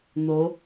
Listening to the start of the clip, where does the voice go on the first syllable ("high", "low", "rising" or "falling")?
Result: rising